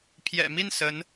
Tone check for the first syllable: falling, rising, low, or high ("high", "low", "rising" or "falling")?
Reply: low